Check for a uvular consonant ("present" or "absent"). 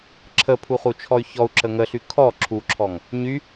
present